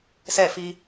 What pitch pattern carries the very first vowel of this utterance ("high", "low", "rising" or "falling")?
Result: falling